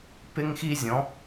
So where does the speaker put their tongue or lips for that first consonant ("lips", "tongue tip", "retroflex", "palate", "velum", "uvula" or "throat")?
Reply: lips